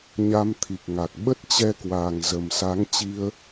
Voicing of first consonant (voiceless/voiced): voiced